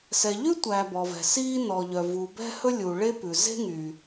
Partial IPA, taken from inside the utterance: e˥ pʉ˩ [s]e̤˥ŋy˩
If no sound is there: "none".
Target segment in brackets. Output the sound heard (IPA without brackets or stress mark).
z